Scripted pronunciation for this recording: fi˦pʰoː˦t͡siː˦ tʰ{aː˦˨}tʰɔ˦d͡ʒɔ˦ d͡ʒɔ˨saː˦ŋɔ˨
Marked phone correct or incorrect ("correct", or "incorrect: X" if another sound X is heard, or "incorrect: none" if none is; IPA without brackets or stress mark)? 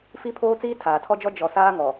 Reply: incorrect: aː˨